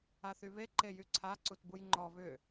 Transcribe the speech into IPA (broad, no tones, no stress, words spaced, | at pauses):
aθyβe ǃejyǀʰa ǀutbujŋ͡ǃɔ βʏ